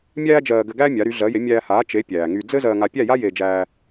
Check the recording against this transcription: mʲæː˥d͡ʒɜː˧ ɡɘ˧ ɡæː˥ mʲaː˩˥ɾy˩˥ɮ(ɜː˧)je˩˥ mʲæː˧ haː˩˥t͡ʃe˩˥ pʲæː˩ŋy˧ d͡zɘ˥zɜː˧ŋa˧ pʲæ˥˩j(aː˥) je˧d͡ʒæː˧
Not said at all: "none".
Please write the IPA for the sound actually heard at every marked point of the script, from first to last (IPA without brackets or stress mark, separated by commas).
ɜː˩˥, a˥